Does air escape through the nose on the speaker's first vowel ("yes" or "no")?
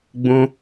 yes